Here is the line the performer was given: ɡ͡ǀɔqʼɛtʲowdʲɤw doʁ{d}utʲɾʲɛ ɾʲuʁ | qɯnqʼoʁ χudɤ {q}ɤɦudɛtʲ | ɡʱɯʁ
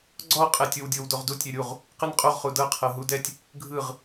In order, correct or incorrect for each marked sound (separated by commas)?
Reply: correct, incorrect